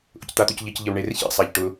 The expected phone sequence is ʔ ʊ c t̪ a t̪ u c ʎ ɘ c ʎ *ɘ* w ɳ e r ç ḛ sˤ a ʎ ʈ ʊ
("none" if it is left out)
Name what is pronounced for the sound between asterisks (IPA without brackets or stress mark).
ɘ